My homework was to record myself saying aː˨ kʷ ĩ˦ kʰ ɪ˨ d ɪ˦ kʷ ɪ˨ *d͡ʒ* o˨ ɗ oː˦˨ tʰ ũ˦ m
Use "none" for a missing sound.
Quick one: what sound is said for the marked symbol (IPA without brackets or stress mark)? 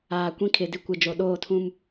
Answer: d͡ʒ